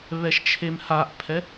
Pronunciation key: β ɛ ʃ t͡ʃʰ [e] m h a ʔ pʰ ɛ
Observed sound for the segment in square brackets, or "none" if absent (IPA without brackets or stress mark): e